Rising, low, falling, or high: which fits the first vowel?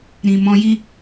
low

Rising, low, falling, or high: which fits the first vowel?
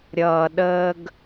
low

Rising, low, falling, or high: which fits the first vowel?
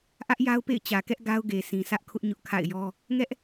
high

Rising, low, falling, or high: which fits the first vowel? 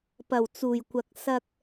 low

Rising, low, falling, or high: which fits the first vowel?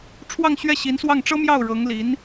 falling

